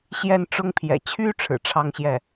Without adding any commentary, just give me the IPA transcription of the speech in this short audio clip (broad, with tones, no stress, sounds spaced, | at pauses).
ɕ j ɛ˥˩ n ʈ͡ʂ ʊ˥ ŋ pʰ j ɛ̰˨˩ t͡ɕʰ y˥ ʈ͡ʂʰ ɻ̩˨˩ ʈ͡ʂʰ ɑ˥ ŋ ɕ j ɛ˥˩